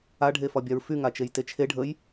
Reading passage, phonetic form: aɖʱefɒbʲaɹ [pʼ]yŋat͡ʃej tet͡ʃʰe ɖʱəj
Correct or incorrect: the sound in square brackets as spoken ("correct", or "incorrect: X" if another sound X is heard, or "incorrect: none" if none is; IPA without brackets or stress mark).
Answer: incorrect: f